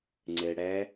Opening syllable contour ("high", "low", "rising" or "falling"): low